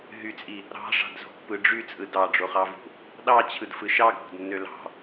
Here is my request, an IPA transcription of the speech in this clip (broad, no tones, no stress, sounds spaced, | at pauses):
ɦ y t͡sʼ i | ɾ ɑ̤ ʂ ɑ̤ d z o̤ pː ɯ ɖ͡ʐ y t͡sʼ ɯ d ɑ ɖ͡ʐ o χ ɑ v ṳ | ɗ ɑ t͡ɕʰ ɯ d f ɯ ʃ ɑ ɡʱ o̤ d nː ø l ɑ̤